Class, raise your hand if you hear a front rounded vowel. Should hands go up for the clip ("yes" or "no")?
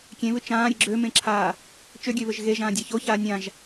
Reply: yes